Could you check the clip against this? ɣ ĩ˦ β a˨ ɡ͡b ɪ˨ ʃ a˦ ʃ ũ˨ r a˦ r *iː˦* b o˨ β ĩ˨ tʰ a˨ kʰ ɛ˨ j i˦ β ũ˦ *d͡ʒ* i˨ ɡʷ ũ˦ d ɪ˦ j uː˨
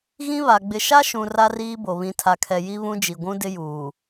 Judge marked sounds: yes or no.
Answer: yes, yes

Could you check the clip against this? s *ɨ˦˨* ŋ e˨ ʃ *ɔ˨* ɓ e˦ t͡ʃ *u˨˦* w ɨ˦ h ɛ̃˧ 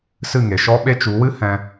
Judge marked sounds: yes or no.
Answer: yes, no, yes

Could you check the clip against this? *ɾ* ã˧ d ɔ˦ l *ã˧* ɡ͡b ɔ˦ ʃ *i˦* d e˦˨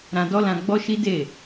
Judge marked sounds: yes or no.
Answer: yes, yes, yes

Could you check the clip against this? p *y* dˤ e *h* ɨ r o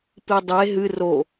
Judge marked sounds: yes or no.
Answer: no, no

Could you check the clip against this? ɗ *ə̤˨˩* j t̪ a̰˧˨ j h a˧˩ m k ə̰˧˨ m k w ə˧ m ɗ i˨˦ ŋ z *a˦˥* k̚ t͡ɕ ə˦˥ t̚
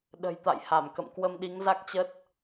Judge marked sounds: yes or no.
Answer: yes, yes

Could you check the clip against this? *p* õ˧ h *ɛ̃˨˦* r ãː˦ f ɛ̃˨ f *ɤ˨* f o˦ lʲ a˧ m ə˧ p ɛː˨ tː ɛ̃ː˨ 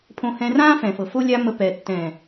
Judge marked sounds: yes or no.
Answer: no, no, yes

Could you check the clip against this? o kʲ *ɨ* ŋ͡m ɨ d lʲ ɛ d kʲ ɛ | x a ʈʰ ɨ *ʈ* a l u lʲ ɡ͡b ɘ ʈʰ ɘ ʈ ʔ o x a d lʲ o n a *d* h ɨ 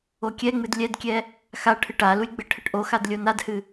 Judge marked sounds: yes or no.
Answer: no, yes, yes

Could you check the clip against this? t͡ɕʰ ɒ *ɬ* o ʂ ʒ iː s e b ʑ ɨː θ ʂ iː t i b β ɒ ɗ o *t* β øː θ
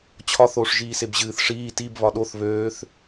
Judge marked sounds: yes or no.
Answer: no, no

